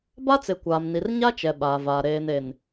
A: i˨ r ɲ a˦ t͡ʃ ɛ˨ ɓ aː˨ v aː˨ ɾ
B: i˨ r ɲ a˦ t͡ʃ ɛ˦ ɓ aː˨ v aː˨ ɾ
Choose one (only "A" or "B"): A